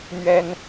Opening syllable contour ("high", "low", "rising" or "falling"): high